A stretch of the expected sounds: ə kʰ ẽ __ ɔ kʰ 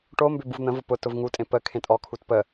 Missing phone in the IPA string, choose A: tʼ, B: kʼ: A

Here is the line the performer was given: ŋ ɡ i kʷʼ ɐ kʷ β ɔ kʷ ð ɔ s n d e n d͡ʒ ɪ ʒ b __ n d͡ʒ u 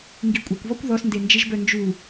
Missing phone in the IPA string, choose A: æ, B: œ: B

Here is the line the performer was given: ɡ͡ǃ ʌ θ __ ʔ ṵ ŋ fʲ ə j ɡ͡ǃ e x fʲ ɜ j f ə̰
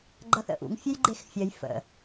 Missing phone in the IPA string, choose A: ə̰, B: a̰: A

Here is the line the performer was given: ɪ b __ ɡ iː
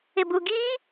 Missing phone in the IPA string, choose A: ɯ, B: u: B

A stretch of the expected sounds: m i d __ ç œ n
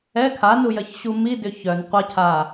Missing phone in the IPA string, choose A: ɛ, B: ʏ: B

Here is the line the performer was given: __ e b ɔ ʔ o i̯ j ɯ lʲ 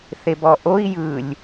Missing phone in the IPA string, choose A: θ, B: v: A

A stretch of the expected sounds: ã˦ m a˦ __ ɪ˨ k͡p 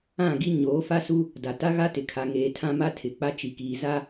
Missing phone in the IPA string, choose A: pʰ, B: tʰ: B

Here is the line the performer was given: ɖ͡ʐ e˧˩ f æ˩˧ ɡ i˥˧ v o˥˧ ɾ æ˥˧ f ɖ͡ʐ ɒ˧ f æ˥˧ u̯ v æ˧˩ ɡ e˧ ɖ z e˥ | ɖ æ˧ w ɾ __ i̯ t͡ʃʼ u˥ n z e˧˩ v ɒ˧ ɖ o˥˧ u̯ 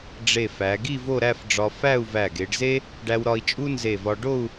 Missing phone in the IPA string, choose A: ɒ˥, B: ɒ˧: B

